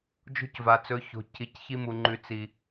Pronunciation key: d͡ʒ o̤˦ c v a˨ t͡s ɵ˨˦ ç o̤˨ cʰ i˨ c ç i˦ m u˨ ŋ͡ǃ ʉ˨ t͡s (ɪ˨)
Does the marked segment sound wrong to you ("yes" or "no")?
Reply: yes